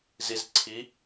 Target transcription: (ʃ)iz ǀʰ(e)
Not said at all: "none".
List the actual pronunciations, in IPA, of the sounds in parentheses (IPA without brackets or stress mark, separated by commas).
z, i